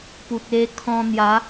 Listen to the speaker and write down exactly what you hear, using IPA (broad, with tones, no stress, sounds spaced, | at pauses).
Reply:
p u˨ t̚ e˧ kʰ ɔ̃˧ n̪ j a˨˦